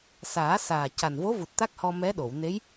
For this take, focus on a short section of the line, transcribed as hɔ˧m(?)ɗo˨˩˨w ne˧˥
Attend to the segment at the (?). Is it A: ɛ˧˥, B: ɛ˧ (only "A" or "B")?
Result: A